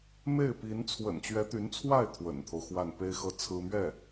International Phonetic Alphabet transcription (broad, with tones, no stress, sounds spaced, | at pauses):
m e˥˩ ɪ̯ p i˧˥ n t͡sʰ w ə̰˨˩ n t͡ɕ ɥ ɛ˧˥ t̪ y˧˥ n t͡sʰ w a˥˩ ɪ̯ t̪ʰ w ə̰˨˩ n t̪ʰ o˦ ʊ̯ x w a˥˩ n p e˥ ɪ̯ x ɤ˥˩ t͡sʰ ɹ̩˥ m ɥ ɛ˥˩